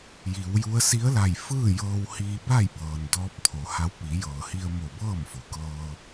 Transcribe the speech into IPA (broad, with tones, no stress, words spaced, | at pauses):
ji˩˧wju˧˥ə̯ si˧˥ə̯la˧˩jfɯː˥˨ jɤː˧whiː˧ba˥˨jbɤː˩n dɔː˧˥p̚t̪ʰo˩˧ha˧˥w pi˩˧jɤː˩hi˧ə̯mo˧˩ bɤː˥˨mfo˩˧ kɤː˧